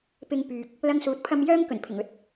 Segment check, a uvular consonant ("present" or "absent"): absent